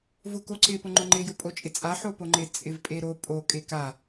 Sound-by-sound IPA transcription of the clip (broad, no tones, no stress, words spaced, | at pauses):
vʊkoǀɪ pʊŋ͡ǃʊŋ͡ǃɪ jʊpʼot͡ʃʼɪt͡sʼa ħopoŋ͡ǃɪ t͡sʼɪvpʼeɾo pʼo kʼeka